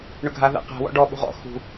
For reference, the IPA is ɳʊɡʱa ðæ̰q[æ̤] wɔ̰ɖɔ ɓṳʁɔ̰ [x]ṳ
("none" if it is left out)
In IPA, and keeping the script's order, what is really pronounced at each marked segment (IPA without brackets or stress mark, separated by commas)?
æ̤, x